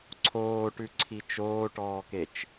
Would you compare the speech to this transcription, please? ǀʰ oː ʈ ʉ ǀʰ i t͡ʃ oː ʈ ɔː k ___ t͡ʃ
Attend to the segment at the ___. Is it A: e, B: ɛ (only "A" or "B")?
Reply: A